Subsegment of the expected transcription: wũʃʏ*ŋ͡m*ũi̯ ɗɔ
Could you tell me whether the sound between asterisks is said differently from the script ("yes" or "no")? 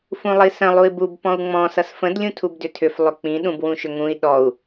yes